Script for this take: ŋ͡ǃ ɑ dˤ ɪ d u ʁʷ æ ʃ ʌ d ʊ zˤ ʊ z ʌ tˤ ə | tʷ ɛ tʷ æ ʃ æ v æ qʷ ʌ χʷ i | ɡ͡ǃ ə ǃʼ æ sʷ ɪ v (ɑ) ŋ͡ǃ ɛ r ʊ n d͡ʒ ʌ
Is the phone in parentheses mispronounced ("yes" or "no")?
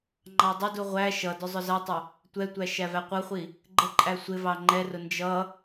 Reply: no